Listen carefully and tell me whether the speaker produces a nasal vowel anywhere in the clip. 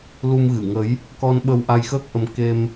no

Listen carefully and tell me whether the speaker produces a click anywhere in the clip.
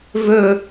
no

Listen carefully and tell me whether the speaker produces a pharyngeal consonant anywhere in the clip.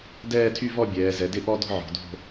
yes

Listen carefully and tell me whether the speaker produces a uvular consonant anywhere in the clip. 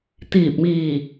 no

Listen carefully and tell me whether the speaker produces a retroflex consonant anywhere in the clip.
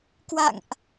no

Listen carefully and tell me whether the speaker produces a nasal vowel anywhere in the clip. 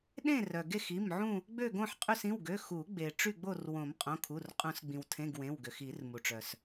yes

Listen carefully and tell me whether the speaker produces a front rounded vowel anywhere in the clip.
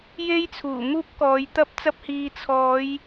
no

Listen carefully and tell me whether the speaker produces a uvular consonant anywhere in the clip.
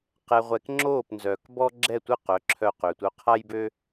yes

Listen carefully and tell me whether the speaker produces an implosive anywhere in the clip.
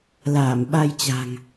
yes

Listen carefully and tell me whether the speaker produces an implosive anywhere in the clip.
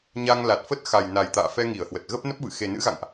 no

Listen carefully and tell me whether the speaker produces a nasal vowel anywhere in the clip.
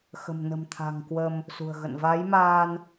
no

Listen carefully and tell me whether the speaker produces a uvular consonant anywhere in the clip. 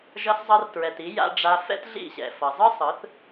no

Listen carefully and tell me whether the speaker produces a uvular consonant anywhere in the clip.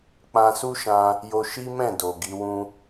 no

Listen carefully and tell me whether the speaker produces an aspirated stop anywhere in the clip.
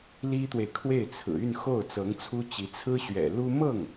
yes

